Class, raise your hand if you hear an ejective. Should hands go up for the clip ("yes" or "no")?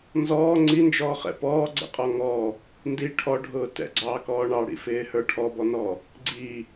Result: yes